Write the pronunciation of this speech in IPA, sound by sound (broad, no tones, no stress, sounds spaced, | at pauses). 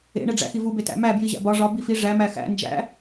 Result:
ḛ ɳ e ɖ͡ʐ æ̰ x i v u b e t æ̰ m æ b j i ʑ æ̰ b ɒ ʐ ɒ b i f i ʐ æ m æ x æ̰ n d͡ʒ æ̰